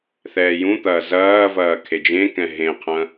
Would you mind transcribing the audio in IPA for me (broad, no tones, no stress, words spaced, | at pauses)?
θɛːjũt̪ɐː zɐːvɐː kʰed͡ʒẽkɛ̃ ɦẽqʰɐ̃